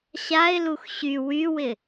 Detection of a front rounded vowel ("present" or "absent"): present